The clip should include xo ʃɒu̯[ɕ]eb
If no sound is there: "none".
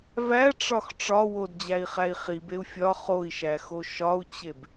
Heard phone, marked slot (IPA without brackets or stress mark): t͡ɕ